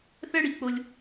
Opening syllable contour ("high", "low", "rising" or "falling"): high